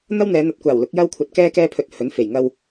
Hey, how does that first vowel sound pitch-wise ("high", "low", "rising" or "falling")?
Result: high